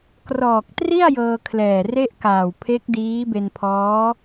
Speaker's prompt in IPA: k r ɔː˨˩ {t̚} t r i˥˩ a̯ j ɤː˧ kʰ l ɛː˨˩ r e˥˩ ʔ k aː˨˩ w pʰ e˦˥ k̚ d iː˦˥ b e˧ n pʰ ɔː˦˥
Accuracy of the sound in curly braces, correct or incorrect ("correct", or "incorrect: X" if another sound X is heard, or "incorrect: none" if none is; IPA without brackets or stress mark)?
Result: incorrect: k̚